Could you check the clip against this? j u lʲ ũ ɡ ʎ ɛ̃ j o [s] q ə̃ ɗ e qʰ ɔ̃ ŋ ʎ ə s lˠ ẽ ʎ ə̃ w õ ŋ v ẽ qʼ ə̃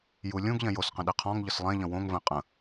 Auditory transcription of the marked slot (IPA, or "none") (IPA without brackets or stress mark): s